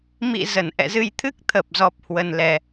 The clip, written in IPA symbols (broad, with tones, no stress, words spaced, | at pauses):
mḭ˧˨ zə˧˩nʔɛ̰˧˨zɨ˧j t̪ʰɨ˦˥k̚t̪ʰə˨˩p̚zɔ˨˩p̚ hwə˧nlɛ˧